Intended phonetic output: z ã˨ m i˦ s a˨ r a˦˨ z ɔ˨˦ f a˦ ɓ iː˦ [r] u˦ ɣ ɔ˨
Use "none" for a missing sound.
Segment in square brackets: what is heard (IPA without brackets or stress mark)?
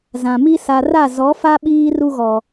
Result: r